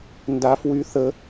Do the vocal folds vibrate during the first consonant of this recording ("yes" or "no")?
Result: yes